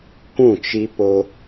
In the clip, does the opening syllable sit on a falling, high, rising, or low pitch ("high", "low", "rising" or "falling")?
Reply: falling